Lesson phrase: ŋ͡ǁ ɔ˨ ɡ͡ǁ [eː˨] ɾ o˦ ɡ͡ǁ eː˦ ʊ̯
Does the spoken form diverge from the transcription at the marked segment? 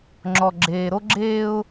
no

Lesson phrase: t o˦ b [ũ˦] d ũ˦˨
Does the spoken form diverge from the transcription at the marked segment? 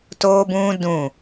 no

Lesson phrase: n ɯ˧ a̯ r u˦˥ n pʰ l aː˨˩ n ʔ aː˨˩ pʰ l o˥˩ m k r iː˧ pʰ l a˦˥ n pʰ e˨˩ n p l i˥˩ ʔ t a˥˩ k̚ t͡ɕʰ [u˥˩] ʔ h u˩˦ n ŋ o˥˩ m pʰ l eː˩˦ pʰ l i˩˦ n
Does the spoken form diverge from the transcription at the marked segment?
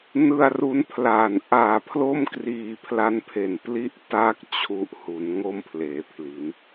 yes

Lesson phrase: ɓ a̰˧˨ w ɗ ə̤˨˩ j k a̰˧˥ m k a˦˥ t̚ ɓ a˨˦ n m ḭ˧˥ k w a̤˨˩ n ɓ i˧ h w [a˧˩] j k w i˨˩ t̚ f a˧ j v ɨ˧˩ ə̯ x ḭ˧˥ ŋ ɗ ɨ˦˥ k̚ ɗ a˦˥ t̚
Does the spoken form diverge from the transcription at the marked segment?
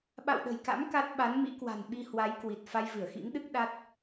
yes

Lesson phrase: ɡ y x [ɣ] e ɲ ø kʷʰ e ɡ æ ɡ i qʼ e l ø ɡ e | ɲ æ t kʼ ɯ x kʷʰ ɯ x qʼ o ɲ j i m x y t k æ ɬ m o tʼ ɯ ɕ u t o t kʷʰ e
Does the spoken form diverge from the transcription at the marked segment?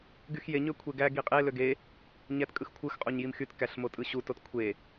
yes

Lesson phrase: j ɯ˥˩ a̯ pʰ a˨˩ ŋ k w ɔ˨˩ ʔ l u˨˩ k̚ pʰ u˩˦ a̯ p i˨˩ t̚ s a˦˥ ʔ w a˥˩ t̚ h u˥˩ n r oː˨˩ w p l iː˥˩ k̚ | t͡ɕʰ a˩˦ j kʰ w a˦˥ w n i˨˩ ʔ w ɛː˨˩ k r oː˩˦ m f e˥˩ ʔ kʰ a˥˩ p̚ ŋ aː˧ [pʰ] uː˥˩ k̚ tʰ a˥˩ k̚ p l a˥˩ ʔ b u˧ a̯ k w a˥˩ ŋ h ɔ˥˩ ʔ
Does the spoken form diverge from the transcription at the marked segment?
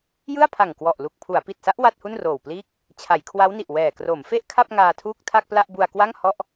yes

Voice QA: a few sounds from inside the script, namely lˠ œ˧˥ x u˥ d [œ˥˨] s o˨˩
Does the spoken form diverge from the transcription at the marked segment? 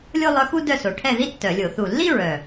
no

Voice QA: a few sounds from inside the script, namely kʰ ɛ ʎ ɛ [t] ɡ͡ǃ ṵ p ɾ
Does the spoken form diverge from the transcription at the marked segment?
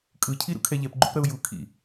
yes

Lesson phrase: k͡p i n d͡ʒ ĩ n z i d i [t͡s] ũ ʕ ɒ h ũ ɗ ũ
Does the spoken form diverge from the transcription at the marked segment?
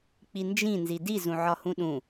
yes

